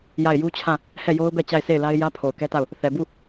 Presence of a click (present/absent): absent